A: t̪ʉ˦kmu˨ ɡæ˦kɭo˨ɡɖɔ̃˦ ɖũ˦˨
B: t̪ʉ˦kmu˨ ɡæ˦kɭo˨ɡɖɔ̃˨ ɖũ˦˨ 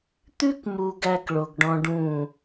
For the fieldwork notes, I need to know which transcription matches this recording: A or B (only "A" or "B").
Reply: A